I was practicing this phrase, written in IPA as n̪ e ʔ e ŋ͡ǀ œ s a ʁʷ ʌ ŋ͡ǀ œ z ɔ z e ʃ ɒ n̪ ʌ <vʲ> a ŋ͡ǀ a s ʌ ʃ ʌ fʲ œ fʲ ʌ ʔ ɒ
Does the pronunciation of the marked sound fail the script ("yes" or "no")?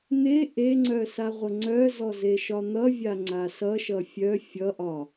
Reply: no